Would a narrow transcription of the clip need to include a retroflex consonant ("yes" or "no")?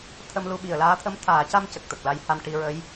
yes